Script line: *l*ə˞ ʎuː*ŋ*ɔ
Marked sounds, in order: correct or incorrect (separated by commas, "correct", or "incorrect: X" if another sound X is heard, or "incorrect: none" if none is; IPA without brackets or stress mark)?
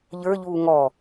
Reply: incorrect: ʎ, correct